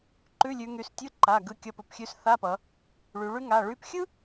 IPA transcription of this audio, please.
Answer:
ǃ ʉ˧˥˧ lʲ ʉ˩˧ ŋ y˩˧˩ s tʲ ɯ˧˥˧ ǃ a˩˧˩ ɡ ɯ˧˥˧ kʲ ʌ˧˥˧ p ə˩˧˩ p xʲ ʉ˥ s θ a˧˥˧ p ʌ˩˧ | ɭ y˩˧ ɭ y˥ ŋ a˩˧˩ ɭ y˧˥˧ p xʲ ɯ˥

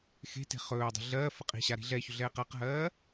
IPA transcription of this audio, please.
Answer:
x e̤ t e̤ χ ɵː dˤ i̤ ɮ ɜː f ə qʼ i̤ ɕ a ɾ i̤ ɮ ɛ ç ʏ ɮ ɛː q a q ɦ ɜː

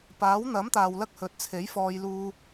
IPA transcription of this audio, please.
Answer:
p aː˨˥ w n̪ ɐ˨˥ m t̪ aː˨ w l ɐ˧ k̚ h ɵ˨˥ t̚ t͡sʰ e˨˥ j f ɔː˧ j l uː˧

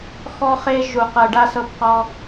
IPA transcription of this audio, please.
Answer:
x ɔ˦ χ e˦ ʒ u˨ q ɤ˨ ɖ a˦ s ɤ˦ b q ɔ˦

